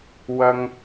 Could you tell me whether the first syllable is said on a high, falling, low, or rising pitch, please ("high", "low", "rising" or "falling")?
low